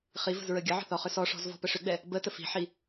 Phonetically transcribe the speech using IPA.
χ i v ə̤ z ɹ ə ɡʲ ə ʕ ə̤ θ ɔ χ ʏ s ɔ ʂ ɔ̤ z v ɔ̤ p ə ʂ ʏ ɡ͡b ɛ | b ə t ə f i̤ ħ i

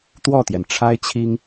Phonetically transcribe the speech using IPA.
t̪ w ɔ˥˩ t̪ j ɛ˩ n ʈ͡ʂʰ a˥ ɪ̯ t͡ɕʰ i˥ ŋ

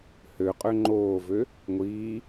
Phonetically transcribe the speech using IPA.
h ø qʼ ø ŋ͡ǃ oː v ø | ŋʷ iː

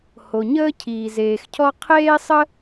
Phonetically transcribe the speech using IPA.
h o˩ ɲ əː˥ cʰ iː˩ z eː˩ x cʰ ɔ˥ qʰ eː˥ sˤ ə˥

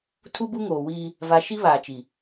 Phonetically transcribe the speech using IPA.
tʰ u˦ b u˦ ŋ oː˨ w iː˦ | v a˨ ʃ i˦ β aː˨ t͡ʃ i˨

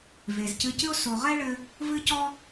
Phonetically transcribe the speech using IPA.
v e˨ z c ɨ˧ c ɨ˦ o̯ s o˨ ʁ ɛ˦ ɭ ɘ˧ | v ɨ˦ c ɔ˦

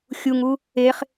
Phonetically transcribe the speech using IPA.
xʲ u ŋ u | e χ

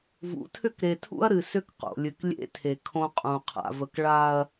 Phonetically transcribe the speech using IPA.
v ṵ˨˦ tʰ ʏ˦˨ k ɾ e˨ tʰ ṵ˦ ɐ̯ ɾ ɨ˨ s ʏ˦ k q o̰˨ lʲ ɨ˨ k lʲ ḛ˦ tʰ e˨ kʰ õ˦ qʼ ũ˨ qʰ a̰˨ v ə˨ k ɭ a˨ ɐ̯

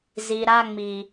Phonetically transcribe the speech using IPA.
z i˨ ɾ a˧ ŋ͡m i˨

